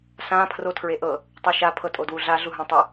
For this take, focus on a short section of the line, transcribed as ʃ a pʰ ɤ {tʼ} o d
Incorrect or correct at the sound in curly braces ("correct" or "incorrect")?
correct